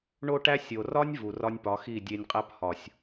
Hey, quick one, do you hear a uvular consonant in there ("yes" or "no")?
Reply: yes